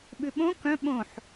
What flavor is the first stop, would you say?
implosive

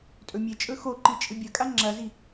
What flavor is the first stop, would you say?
ejective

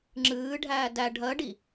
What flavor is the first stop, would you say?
click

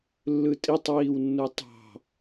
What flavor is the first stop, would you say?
ejective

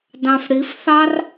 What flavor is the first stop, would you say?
plain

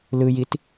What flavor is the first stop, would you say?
plain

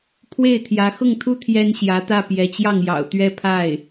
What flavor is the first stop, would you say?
aspirated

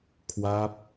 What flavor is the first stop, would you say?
aspirated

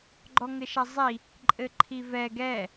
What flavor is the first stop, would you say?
click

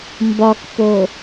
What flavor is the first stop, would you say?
plain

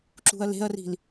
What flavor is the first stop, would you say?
click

